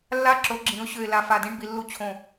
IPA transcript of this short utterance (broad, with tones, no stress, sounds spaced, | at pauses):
lː a˦ ǁ o˩˥ ɡ͡ǁ ĩ˩˥ ʊ̯ ɕ ø˧˩ ɪ̯ l a˧˩ f a˧˩ d ĩ˦ ɳ b i˩˥ lː u˦ t͡ɕʰ õ˧˩